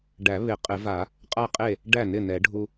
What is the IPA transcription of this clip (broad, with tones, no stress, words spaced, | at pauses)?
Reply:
ɖæ˨˩˦ βɪ˨˩˦ qʼɪ˨˩˦va˨˩˦ | qʼa˥˩qʼe˥˩ | ɖæ˥˩nɪ˥˩nɛ˨˩˦ɖʱu˧